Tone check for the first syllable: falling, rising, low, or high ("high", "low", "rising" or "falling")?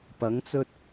rising